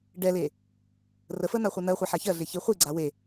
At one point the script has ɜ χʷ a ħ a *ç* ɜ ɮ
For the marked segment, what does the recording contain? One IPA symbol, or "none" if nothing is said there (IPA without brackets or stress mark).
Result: ç